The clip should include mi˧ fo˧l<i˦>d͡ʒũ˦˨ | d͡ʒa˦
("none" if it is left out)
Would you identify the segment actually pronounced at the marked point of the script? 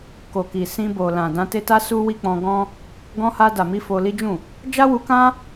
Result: i˦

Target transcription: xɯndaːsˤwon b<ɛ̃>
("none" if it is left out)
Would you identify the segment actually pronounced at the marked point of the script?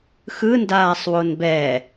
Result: ɛ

